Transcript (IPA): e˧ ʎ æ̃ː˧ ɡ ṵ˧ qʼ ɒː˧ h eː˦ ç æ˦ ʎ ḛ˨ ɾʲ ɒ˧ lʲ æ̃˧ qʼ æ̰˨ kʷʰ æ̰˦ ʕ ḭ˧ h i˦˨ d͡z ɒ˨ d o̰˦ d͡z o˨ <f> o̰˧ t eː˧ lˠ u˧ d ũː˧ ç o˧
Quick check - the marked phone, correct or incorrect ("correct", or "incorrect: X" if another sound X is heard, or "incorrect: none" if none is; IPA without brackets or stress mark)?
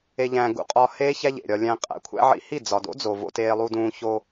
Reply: incorrect: v